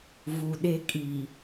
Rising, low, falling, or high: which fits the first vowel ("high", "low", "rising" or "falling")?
low